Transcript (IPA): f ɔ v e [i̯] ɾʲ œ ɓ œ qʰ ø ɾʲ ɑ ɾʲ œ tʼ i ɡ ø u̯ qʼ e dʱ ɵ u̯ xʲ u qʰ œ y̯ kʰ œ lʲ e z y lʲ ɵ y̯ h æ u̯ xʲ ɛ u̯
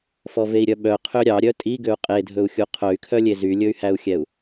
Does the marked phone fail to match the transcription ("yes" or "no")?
no